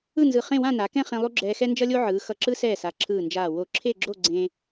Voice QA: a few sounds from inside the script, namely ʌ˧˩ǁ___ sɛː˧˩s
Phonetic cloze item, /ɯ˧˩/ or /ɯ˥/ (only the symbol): ɯ˥